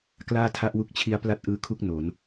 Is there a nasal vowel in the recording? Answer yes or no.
no